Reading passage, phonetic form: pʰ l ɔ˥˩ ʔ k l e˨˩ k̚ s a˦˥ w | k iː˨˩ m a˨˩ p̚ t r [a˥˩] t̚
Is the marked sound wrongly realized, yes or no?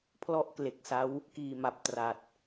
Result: yes